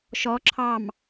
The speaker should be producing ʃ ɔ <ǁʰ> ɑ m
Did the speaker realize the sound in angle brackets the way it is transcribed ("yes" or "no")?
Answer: yes